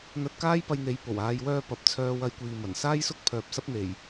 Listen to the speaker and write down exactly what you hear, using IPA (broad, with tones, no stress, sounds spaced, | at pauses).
n̪ ɐ˧ t̚ k aː˥ j p ɐ˧ j n̪ e˨˧ j p o˨˩ w aː˧ j w œː˧ p ɐ˨˥ p̚ t͡sʰ œː˧ w ɐ˧ j kʷ iː˨ m ɐ˨˩ n s aː˥ j s ʊ˥ k̚ pʰ œː˨ p̚ s ɐ˥ p̚ n̪ e˨˩ j